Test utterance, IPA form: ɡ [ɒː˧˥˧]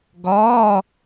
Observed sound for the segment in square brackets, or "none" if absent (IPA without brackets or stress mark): ɒː˧˥˧